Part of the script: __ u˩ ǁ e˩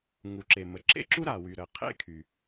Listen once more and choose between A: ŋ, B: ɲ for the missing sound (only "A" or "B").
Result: A